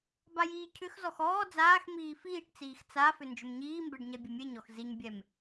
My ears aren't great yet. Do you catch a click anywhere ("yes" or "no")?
no